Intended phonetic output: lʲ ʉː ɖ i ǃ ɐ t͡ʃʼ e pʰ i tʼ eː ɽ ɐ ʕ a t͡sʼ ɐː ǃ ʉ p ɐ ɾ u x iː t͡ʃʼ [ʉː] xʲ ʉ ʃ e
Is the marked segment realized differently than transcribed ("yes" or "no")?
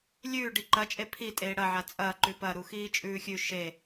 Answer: no